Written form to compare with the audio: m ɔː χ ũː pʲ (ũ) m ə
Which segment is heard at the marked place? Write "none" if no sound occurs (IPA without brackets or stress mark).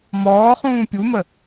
u